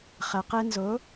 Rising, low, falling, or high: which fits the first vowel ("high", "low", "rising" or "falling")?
low